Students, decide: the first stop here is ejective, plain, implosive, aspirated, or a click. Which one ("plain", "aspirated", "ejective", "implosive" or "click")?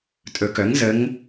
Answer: ejective